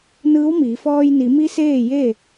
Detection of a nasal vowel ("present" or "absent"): absent